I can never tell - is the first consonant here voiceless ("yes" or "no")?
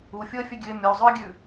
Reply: yes